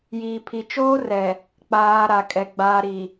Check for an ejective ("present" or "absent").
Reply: present